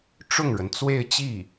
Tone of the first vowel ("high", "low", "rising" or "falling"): falling